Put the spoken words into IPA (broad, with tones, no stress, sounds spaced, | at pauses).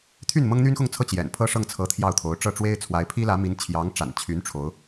t̪ʰ y˥˩ n m ɤ˥ ŋ n̪ y˥ n x ʊ˥˧ ŋ t͡sʰ ɤ˥˩ t͡ɕ j ɛ̰˨˩ n pʰ ɤ˥˧ ʂ ɤ˥˩ ŋ t͡sʰ ɤ˧˥ t̪ʰ j ɑ˥˩ ʊ̯ t̪ʰ o˧˥ ʊ̯ ʈ͡ʂ ɤ˥˩ ʈ͡ʂ w e˥ ɪ̯ t͡sʰ w a˧˥ ɪ̯ pʰ i˥ l ä˧˥ m i˧˥ n t͡ɕʰ j ɑ˧˥ ŋ ʈ͡ʂ a̰˨˩ n t͡ɕʰ y˧˥ n ʈ͡ʂʰ o˧˥ ʊ̯